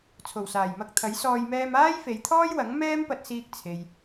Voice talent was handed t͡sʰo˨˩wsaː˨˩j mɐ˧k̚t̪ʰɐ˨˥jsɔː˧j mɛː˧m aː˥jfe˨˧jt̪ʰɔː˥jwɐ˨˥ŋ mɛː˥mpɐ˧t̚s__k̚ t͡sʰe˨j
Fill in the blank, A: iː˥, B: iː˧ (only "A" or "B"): B